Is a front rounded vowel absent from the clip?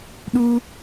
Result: yes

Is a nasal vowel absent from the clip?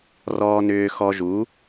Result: yes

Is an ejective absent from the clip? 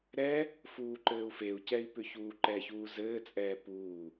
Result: no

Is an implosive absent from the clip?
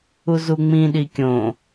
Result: no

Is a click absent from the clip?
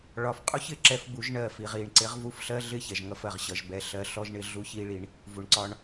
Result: no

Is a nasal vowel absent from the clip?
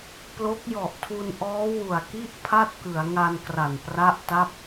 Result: yes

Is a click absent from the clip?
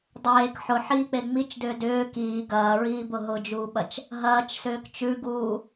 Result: yes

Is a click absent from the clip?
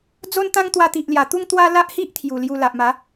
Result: yes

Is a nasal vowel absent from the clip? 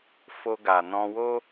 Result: no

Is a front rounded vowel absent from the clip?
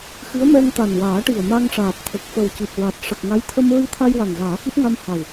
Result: yes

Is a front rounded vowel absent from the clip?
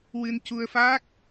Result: yes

